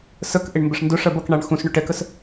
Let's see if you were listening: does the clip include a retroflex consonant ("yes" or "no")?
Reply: yes